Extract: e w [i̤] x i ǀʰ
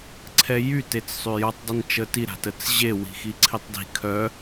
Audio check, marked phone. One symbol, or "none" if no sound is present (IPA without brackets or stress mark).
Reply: i̤